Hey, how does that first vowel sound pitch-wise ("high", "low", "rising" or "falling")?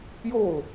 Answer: falling